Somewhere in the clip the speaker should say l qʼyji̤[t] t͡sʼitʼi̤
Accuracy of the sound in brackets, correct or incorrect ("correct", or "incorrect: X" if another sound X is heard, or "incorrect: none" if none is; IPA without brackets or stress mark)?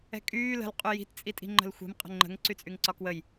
correct